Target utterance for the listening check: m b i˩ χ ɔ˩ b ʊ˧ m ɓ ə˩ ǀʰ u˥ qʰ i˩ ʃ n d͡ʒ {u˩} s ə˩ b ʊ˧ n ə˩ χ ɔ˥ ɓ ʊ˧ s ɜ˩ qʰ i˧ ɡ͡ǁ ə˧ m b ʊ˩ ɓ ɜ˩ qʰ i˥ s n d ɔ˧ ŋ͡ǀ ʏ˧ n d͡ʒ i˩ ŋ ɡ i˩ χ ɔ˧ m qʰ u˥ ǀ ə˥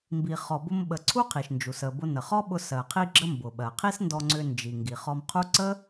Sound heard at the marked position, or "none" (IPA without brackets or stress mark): u˩